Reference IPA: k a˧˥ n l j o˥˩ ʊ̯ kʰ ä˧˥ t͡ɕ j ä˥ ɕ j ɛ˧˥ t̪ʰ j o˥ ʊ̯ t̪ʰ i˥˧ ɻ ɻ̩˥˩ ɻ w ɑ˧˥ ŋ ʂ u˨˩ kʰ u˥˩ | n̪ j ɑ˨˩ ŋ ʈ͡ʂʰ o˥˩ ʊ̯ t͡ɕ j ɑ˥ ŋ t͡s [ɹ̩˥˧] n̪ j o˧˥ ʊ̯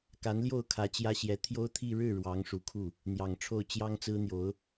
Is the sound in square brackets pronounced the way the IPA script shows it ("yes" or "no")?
no